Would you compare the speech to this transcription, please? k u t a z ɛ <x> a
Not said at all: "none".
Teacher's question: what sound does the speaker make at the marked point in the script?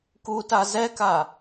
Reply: k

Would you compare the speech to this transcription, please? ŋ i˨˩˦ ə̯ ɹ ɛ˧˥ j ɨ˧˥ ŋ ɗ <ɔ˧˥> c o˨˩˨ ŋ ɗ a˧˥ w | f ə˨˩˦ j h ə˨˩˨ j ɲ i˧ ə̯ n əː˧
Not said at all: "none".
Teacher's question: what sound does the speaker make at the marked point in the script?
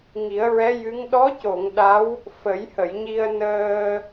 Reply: ɔ˧˥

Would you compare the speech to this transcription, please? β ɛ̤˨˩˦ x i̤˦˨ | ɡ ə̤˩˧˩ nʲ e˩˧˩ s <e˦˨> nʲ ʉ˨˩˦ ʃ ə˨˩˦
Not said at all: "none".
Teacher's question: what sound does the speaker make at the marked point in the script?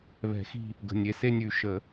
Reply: e˦˨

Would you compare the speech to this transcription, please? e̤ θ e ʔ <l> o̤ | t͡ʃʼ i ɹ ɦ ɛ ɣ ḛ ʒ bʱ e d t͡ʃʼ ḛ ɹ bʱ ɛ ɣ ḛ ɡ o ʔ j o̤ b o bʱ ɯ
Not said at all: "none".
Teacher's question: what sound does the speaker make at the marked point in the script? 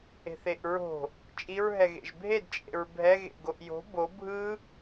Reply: ɹ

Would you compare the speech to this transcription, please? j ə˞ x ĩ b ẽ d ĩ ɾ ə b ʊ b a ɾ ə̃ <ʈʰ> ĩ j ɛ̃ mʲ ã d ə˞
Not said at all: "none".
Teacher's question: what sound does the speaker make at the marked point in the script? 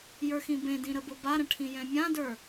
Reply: ʈʰ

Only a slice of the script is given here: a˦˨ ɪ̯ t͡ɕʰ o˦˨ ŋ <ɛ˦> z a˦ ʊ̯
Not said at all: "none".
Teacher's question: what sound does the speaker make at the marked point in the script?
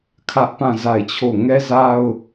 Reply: ɛ˦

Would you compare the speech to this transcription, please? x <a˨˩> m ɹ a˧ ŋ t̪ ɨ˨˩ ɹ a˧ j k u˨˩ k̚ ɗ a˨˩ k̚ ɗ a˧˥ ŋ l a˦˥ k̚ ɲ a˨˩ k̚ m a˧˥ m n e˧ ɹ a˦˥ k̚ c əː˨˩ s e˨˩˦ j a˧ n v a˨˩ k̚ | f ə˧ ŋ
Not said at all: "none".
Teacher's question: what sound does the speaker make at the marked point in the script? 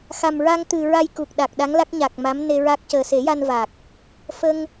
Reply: a˨˩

